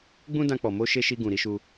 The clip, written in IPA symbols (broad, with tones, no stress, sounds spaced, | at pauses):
ɡ͡b ũ˦ d ã˧ k͡p ɔ˨ m o˧ ʃ e˧ ʃ i˧ ɡ ũ˨ ɾ i˧ ʃ u˧